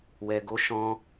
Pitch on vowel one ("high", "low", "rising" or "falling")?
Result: low